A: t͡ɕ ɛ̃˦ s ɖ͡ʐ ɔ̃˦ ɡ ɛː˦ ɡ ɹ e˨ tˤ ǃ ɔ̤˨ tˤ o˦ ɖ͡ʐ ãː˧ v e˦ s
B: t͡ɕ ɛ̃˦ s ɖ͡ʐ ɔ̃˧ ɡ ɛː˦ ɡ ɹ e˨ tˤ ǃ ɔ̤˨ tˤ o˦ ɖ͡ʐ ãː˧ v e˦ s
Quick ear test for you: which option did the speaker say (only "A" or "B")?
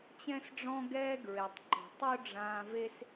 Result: A